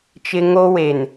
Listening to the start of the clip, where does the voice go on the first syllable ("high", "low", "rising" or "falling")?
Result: high